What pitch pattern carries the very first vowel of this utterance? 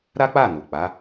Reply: high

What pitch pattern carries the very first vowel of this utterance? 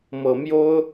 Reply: low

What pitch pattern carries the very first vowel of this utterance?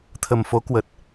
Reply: low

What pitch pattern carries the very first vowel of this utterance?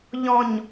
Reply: low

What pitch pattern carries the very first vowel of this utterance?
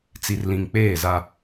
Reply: low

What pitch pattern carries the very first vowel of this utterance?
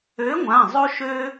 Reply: rising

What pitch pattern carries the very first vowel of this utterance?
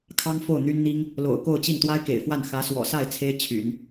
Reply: high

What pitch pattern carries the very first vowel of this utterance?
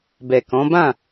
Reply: low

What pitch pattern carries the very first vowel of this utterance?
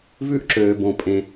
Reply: high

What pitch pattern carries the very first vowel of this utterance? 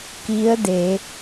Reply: rising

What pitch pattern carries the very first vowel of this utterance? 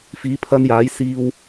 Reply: rising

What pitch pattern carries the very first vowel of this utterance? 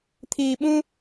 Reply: low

